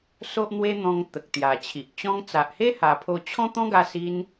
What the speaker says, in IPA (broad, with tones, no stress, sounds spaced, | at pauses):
s o˦ ʔ n̪ w e˦ n̪ ɔ̃˧ ŋ t̪ ə˨ k̚ t̪ j a˨˩ t͡ɕʰ i˨ ʔ t͡ɕ ɔ̃˧ ŋ t͡s a˨ ʔ h e˦ h a˨˩ pʰ o˧ t͡ɕʰ ɔ̃˦ t̪ ɔ̃˦ ɡ a˧ s i˧ n